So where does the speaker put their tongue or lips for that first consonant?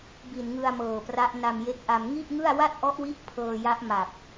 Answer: lips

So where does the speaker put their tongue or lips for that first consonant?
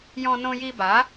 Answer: palate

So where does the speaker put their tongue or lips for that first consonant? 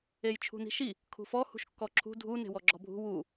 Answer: palate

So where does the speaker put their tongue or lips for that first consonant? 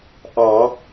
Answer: throat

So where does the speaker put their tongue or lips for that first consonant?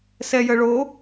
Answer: tongue tip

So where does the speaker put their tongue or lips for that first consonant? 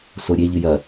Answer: tongue tip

